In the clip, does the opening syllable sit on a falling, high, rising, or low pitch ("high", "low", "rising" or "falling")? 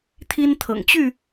high